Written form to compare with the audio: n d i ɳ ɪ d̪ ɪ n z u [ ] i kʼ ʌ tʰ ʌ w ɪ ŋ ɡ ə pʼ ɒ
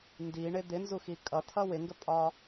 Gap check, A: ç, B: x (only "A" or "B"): B